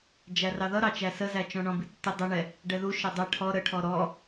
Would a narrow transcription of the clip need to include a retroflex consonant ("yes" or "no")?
yes